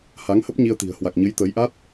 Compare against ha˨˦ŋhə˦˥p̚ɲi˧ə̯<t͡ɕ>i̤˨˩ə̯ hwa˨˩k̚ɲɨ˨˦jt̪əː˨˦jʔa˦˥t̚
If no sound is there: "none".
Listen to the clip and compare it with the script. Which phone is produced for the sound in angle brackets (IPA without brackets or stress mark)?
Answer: t̪